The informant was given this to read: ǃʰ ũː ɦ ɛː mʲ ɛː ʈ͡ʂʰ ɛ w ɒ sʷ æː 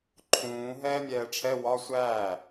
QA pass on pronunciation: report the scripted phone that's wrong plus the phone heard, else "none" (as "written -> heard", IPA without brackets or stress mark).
none